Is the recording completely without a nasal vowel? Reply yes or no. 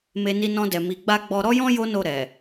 no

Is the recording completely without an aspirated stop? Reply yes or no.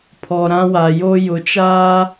no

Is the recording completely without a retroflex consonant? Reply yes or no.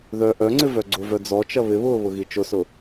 yes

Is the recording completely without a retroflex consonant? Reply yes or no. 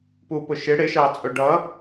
no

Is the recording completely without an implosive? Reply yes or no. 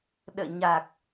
no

